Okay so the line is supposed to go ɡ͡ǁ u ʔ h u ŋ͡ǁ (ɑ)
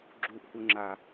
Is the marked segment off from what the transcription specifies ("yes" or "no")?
yes